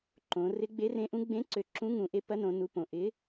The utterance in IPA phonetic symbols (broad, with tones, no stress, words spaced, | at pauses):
ǃõ˩˧ rɪ˨˥ɡ͡be˨˥rẽ˨˥ʔũ˨˥ ɡ͡bẽ˨˥ǀø˩˧ ǁũ˨˥ŋũ˩˧ ʔe˨˥ pɐ˨˥nõ˩˧nu˩˧põ˩˧ ʔɪ˨˥